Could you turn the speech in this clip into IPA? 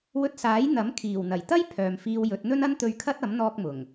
w ɵ˧ t̚ s aː˨˥ j n̪ ɐ˨˥ m kʰ iː˨˩ w n̪ ɐ˨˩ j t̪ ɐ˥ j pʰ œː˨ m f iː˧ w j ɵ˨˥ t̚ n̪ ɵ˥ n ɐ˥ n t̪ ɵ˧ ɥ kʰ ɐ˥ t̚ ɐ˨˥ m n̪ ɔː˧ k̚ m ʊ˨˩ ŋ

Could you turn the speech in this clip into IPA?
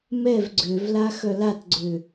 m ɛ v ɡ͡ǀ ø v l a x œ l a t ɡ͡ǀ ø

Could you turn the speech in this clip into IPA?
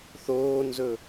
θ oː n z ɵ

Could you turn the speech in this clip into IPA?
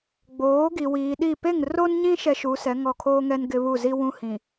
ɡ͡b oː˨˦ ɡ i˨ w iː˨ ɗ i˦˨ p e˦˨ ŋ r o˦ n ɲ ĩ˦ ʃ ɛ˦ ʃ u˨˦ s ɛ˨˦ ŋ ɔ˦˨ kʰ oː˦ ŋ ɛ˦ n ɡ ɪ˦ β u˦˨ z i˦ w ũ˦ h ĩ˨

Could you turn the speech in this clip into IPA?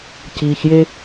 c iː˨ ç j e˧

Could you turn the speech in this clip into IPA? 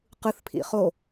q ɯ θ pʰ ḭ χ o

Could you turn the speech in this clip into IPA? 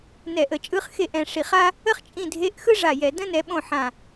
n ɛ˧˩˧ ʔ ə˧˩˧ t͡ʃʼ ɯ˧˥˧ χ x e˥˩ ʔ ɛ̃˨˦ ʂ i˧˩˧ χ a˥ | ə˥ χ t͡ʃʼ ĩ˥˩ dʱ e˧˥˧ ʔ x ɯ˥ ʐ a˧˩ j ɛ˧˩˧ d ə̃˥ n ɛ˨˦ ɓ õ˥˩ ħ ã˧˩

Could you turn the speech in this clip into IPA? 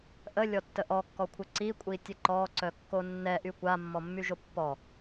ʔ ə lʲ ɔ tː ə ʔ ɔ kː ɔ kʷʰ ə ǀ i kʷʼ i tʲ ə ǃ ɔ ǀ œ kː o nː ɛ ʔ y kʷ a mː ɔ mː y ʒ o pː ɔ

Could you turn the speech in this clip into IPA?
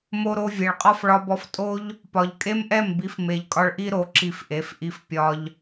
m o˧ ɾ o˦ vʲ e˨ ɭ qʼ ɒ˦ f ɭ ɒ˦ b ɔ˦ f tʼ o˦ ʎ | p ɒ˨ ʎ kʼ e˦ m ʔ ɛ˦˨ m b i˨˦ f m e˨ ʎ kʼ ɒ˧ ɭ ʔ i˦ ɾ o˨˦ ǁ i˧ f ʔ e˨˦ f ʔ i˧ f pʲ ɒ˧ ʎ

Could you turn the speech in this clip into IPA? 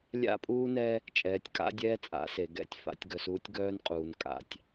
lʲ a̰˦ pʼ uː˦ n ɛ˦ | t͡ʃʼ ɛː˨ tʲ kʼ a̰˦ dʲ ɛː˦ t͡sʼ a̰˨˦ s e˨ ɡ ɛ̰˦ tʲ f a̰˨ tʲ ɡ œ˨ s uː˦ tʲ ɡ œː˦ n qʼ uː˨ n kʼ a̰˨ tʲ

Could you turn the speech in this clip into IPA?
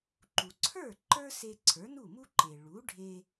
ǃ u˩ ǀʰ ə˞˥˩ ǃ ə˞˥ s e˧ ǀʰ ə˞˩˥ n u˥˩ m u˥ ǃ e˩ ɭ u˩˥ ɖʱ e˧

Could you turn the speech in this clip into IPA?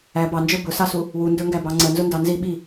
æ b ɑ n d͡ʒ ə˞ b ʊ s ɑ s u | w u n d ə˞ ŋ ɡ æ b ɑ ŋ͡ǀ ə n z ʊ n d ɑ n z i ɓ i

